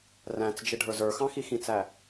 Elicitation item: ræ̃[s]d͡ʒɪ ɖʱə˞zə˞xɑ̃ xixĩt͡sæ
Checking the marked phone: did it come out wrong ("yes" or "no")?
yes